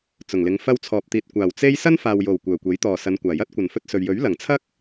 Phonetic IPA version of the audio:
t͡sʊ˨˩ŋlɪ˨˧ŋ fɐ˧wt͡sʰɔː˨p̚t̪iː˨t̚ kʷaː˨˩w t͡se˥j sɐ˥nfaː˨wjo˨˩w kʷœː˨˩kʷe˨˥j t̪ɔː˨˩ sɐ˨˧nkʷaː˨˩jɐ˥t̚ kʷɐ˨˩nfɵ˧t̚sɵ˨ɥ jɵ˨˥ɥlɐ˨˩ŋt͡sʰɐ˥k̚

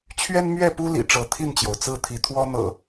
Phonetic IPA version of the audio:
t͡ɕʰɥɛ˦nmɥɛ˥˨pu˦ lḭ˨˩ʈ͡ʂɤ˨˦t̪ʰi˥˨nt͡ɕjo˩ʊ̯ t͡sɹ̩˥˨t̪ʰi˨˦ t̪ʰwɔ˦ n̪ɤ̰˨˩

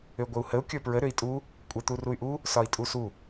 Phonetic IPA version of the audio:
øɡʷəu̯həu̯ kʲə˞pɹə ɾøi̯tʼu | kʷʼə t̪uruy̯ʔu | sɒi̯tʼusu

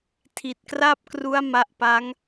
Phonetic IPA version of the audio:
tʰi˨˩t̚kra˥˩p̚kru˦˥a̯ ma˦˥ʔpa˦˥ŋ

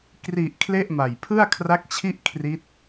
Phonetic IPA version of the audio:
kri˨˩ʔ kʰle˥˩ʔma˨˩j pʰɯ˥˩a̯kʰra˦˥k̚t͡ɕʰi˥˩ʔ kʰri˦˥t̚

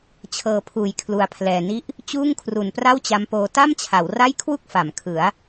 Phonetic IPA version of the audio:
t͡ɕʰɤː˧pʰuː˨˩j kʰlu˧a̯pʰlɛː˧ni˥˩ʔ | t͡ɕuː˥˩ŋkʰru˨˩n pra˥˩wt͡ɕa˦˥mpoː˧ ta˥˩m t͡ɕʰa˩˦w ra˥˩j kʰwu˥˩k̚fa˩˦m kʰɯ˩˦a̯

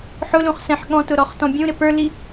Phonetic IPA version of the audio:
ħʊlũχ sɛ̃ħɠɔ̃tʊ ɾɔχtɔ̃bʲũɾɪ pə˞li

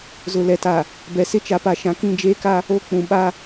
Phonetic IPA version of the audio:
zʊ˨ lɛ˨ta˨ | bɛ˨sɪ˦t͡ʃa˨˦pa˨ ʃã˨kĩ˦˨ d͡ʒeː˦ka˦ | o˦ k͡pũ˨ɓa˦

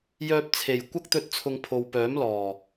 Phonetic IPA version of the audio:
jœː˧p̚t͡sʰe˨˩j kʷɐ˥k̚t̪ɵ˧t̚t͡sʰʊ˨ŋ pʰo˨w pœː˨˥mlɔː˨˩

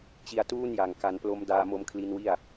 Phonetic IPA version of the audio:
t͡ɕi˧a̯tuː˥˩nja˨˩ŋ ka˧nplo˦˥m daː˧mo˧mkʰli˧nwi˥˩a̯

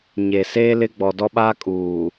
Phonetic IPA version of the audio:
ɲeː˨ seː˦lɪ˦ ɡ͡bɔ˨dɔ˦ɓaː˦ kʼuː˨

